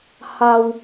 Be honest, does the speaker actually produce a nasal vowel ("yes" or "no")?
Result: no